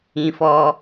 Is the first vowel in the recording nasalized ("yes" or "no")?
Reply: yes